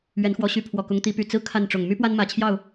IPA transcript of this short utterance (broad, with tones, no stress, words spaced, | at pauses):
ɥɛ˨˦nxwɔ˨˦ɕy˨˦ pʰwɔ˨˩kʊ˨˦ŋt̪i˨˦py˨˩ t͡sɹ̩˦ kʰa˥˨nʈ͡ʂʊ˨˩ŋ my˦pwa˦nmä˨˩t͡ɕʰjɑ˥˨ʊ̯